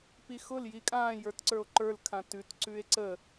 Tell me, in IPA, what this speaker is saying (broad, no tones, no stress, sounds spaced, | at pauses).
p i x ʊ l j i kʼ ãː j ə˞ t ǀ ə˞ o̯ ǃ ə˞ l kʰ ã t ʉ t ǀ ʉ e̯ ǀ ə